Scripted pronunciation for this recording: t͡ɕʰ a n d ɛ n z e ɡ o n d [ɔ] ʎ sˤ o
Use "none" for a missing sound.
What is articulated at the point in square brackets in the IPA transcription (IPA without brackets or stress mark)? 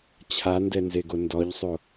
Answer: ɔ